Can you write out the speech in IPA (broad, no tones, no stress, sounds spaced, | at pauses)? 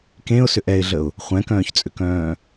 k ẽ ʊ̯ s ʏ ʔ ɛ ɪ̯ ɮ ə ʊ̯ | χʷ ɛ̃ k œ̃ː ç t͡sʼ ʏ k œ̃ː